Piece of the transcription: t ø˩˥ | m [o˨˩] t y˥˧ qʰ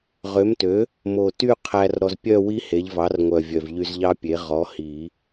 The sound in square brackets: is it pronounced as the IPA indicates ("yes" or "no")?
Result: yes